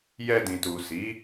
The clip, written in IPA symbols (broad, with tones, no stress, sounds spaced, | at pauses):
j ɛ˧ d ĩ˨ t u˨ s i˨˦